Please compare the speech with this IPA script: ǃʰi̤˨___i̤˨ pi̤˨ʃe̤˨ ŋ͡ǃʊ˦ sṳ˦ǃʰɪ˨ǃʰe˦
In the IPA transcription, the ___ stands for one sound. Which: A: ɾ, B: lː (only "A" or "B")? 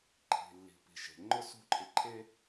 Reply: B